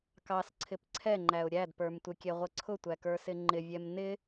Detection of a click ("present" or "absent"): present